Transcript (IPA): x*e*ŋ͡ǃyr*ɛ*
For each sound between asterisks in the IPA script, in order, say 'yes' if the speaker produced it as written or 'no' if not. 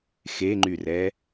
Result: yes, yes

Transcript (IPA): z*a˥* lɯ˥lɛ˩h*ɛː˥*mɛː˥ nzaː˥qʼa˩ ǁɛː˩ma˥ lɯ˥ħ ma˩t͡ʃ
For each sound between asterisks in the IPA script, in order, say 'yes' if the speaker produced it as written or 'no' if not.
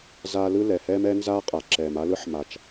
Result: yes, yes

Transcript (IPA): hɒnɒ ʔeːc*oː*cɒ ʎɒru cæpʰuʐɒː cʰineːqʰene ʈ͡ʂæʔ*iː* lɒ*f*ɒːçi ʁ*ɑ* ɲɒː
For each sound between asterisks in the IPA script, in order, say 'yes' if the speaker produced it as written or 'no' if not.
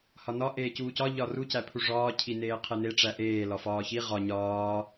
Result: no, no, yes, no

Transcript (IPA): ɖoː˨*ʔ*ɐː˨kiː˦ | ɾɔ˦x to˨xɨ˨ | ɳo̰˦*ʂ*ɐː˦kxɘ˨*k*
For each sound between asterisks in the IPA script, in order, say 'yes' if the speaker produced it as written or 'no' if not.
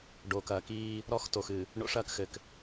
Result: no, yes, yes

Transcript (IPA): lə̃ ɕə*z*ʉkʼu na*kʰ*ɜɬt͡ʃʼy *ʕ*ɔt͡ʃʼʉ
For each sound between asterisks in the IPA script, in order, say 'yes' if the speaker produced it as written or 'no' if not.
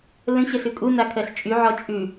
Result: no, yes, yes

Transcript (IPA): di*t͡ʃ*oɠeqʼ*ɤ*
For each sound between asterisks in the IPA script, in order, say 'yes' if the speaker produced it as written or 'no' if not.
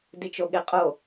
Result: yes, no

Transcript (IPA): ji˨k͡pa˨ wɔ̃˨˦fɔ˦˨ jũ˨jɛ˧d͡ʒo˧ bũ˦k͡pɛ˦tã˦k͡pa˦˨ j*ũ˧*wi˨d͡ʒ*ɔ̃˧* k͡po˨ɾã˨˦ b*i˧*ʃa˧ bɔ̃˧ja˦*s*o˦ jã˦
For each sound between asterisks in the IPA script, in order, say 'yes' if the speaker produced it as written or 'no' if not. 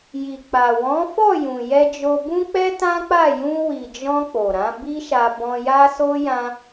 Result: yes, yes, no, yes

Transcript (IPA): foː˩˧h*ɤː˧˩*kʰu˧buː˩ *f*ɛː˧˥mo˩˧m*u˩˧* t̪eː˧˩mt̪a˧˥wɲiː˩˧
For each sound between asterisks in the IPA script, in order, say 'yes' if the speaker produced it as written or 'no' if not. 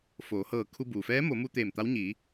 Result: yes, yes, no

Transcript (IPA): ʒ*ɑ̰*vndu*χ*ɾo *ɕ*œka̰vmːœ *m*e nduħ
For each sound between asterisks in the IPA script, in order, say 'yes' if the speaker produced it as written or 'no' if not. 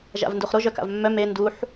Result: no, yes, no, yes

